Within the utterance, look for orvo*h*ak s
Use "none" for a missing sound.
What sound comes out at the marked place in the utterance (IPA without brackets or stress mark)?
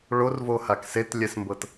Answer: h